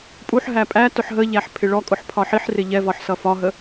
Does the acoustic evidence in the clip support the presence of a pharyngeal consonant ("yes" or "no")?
yes